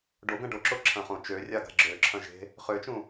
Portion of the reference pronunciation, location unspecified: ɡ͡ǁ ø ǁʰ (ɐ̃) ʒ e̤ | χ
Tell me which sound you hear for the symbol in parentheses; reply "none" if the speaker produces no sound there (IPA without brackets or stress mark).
ɐ̃